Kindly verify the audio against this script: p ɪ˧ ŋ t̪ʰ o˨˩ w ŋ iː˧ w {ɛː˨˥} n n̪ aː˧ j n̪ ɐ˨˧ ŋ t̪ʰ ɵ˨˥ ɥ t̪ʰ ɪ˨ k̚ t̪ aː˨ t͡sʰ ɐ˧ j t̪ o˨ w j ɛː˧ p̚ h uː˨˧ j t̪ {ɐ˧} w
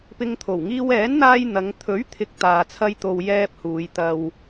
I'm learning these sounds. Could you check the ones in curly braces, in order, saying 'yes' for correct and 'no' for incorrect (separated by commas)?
yes, yes